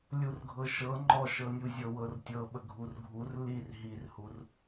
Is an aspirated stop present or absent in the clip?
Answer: absent